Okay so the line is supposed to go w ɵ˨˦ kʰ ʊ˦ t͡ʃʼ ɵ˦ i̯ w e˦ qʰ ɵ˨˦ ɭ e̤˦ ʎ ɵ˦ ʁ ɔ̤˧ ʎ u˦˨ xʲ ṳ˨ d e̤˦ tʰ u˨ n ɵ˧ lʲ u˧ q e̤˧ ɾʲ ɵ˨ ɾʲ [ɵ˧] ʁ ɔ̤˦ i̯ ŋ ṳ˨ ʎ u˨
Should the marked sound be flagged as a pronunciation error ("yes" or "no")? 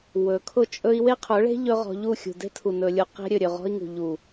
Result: yes